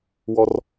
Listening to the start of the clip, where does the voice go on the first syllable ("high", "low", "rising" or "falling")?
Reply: high